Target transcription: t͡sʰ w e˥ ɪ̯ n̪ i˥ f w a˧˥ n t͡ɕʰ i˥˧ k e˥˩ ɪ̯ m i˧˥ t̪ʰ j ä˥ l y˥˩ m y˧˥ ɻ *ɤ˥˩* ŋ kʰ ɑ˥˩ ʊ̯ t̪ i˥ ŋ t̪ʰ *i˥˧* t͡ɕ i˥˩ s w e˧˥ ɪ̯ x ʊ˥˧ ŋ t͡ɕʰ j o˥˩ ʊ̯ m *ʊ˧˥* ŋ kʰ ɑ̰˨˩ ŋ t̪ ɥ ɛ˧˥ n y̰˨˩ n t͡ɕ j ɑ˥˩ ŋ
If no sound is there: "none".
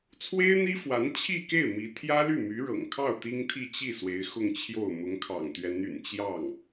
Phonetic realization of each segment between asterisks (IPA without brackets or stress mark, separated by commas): ɤ̰˨˩, i˥˧, ʊ˧˥